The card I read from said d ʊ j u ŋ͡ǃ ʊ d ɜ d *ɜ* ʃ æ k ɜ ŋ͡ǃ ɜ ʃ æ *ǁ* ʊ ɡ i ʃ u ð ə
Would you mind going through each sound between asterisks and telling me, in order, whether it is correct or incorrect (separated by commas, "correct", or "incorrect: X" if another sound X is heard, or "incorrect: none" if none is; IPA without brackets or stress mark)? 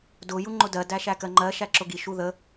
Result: incorrect: æ, correct